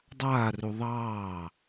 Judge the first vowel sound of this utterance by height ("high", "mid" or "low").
low